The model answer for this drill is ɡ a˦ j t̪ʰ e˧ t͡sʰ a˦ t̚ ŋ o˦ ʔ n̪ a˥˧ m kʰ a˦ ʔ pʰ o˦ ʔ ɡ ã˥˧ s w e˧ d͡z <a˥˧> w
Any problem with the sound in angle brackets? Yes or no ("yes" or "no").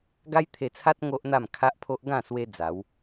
yes